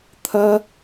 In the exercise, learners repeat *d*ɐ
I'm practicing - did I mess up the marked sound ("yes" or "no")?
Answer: yes